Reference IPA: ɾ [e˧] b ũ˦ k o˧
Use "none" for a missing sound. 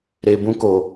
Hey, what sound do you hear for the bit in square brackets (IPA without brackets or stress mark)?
e˧